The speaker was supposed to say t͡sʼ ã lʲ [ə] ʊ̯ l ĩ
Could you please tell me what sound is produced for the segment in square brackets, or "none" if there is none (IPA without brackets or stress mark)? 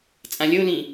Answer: ə